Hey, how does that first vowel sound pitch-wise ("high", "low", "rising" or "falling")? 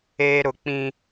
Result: high